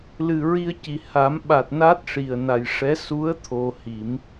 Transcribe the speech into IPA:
lɨ˨˩ɹi˧ə̯ci˨˩ ha˨˩˦mɓa˨˩t̚ na˦˥t̚ʂi˨˩ə̯na˨˩jʂɛ˧˥ su˧˥ə̯ t̪ʰo˧hi˨˩˦m

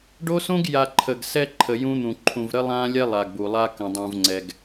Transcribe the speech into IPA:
ɖo˦sõ˦ɡ ja˨ ǃʰə˨ɡsɛ˦ ǃʰə˨jũ˦n̪ũ˨ ǃʰũ˨vɾə˦lˠã˦lʲɛ˦ lˠa˨ɡbu˨lˠa˦ kə̃˨dˤũ˨vŋ͡ǀɛ˨ɡ

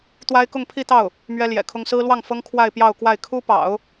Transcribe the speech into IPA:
t̪wa˥ɪ̯kʊ˥˧ŋpʰi˥˧t̪ɑ˥˩ʊ̯ | mɥɛ˥ljɛ̰˨˩kʰʊ˥ŋ sɹ̩˥lwɑ˥˩ŋfɤ˥ŋ kʰwa˥˧ɪ̯pjɑ˥˧ʊ̯kwa˥˩ɪ̯ kʰu˥pɑ̰˨˩˦ʊ̯

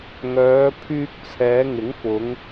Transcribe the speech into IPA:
ŋœː˨˧pʰyː˧k̚ t͡sʰɛː˨˧ŋɪ˨˥ŋfʊ˨˧ŋ

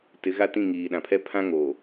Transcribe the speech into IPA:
tɪ˨˦ɣa˦ tĩ˦˨ŋiː˨ɗã˨pʰɛ˦ pʰã˦ŋoː˨

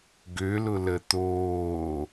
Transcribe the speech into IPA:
ɡølʊlə t̪oː

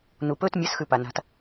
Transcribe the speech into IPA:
nupɵt mʲɐsxʉ pana̤t

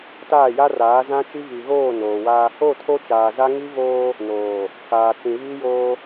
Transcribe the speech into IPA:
taː˦˨ja˦ raː˨˦zã˦t͡ʃi˦ vi˨ɣoː˦˨ noː˨wa˦ | o˦˨tʰo˦t͡ʃaː˨za˦ ŋi˦voː˦ | noː˨ | kaː˨t͡sĩ˨ βi˦joː˦

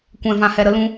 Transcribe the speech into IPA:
kʷɛ̃˨ vã˨hɛ˨ ɾə˧ lũ˧

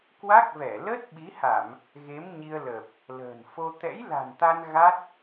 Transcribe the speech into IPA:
kwa˦˥k̚vɛ˧˩ lə˦˥t̚ɓi˨˦ha˧˩˨m | ɣe˨˦mɲi˧ə̯ləː˨˩p̚ | lə̤ː˨˩nfo˧ t̪ɛ̰˧˥jla̤˨˩nt̪a˧n ɣa˦˥t̚

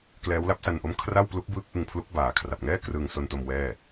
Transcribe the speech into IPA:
klɛː˦˥wla˦˥p̚sa˧nʔo˦˥m kʰra˥˩wplu˦˥k̚bɯː˦˥k̚ ʔɯ˧ŋpʰlu˦˥k̚ baː˨˩kʰra˨˩p̚ŋɛː˥˩ krɯː˧ŋso˧nto˧m wɛː˥˩

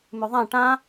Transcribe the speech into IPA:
mʉðˤã ʈã

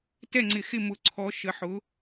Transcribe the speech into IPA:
tɛ˦˨ŋ͡ǀɪ˨xɪ˦˨mʊ˨˥ ǀʰɔ˨˥ʃə˨˥ħʊ˨˥

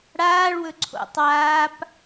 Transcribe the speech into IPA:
ɽaːɭwɵ ǀʰo̰tˤwaːp

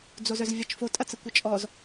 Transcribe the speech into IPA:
d͡zozœzvʲɐt͡ʃfo tʼɐt͡səkʷət͡ʃʼɔz

